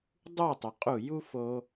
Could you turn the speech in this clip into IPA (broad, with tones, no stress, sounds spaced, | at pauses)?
dˤ u˦˨ tˤ ʏ˨ qʼ u˦˨ j u˦ f o˧